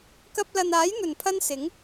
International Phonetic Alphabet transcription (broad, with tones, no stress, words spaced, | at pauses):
kɐ˧p̚lɐ˨naː˨˥jn̪ɵ˨˩n pʰɐ˥nsɪ˨˥ŋ